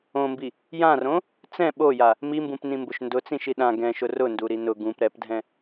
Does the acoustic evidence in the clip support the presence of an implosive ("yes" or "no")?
yes